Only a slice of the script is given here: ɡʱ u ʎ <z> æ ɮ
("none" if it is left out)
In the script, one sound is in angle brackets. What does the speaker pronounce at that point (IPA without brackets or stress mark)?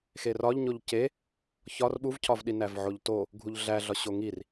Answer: ɮ